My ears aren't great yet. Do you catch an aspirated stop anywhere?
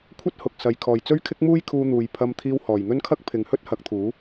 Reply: yes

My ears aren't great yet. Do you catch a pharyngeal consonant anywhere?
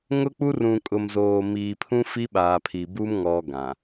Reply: no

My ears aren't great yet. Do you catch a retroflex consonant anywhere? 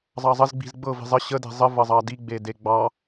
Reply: no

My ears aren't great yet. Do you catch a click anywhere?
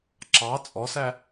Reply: yes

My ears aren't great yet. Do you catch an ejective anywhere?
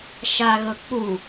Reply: no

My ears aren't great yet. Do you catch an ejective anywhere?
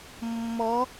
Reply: no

